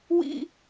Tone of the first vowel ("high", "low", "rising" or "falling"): high